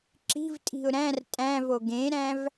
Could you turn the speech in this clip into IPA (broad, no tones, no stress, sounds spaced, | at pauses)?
ǁ i̤ v tʼ i̤ ʊ̯ ɾ æ̃ r tʼ æ̃ v o ɡ ẽ ɾ æ̃ v